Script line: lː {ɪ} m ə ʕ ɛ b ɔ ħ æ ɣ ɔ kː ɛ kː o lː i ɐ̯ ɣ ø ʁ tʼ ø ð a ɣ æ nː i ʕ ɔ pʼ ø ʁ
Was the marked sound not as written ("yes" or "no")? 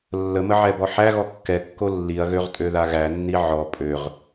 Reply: yes